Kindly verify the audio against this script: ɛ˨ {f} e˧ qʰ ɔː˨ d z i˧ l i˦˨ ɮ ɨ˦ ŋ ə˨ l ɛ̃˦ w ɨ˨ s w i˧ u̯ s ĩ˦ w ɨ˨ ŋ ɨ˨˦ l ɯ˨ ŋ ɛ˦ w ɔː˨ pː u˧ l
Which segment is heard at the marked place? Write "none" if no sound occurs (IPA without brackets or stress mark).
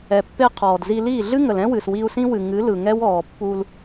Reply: pː